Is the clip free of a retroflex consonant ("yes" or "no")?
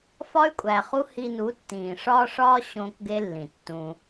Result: no